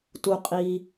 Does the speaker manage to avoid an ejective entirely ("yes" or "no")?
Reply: no